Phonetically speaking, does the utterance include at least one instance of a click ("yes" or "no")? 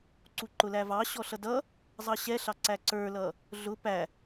yes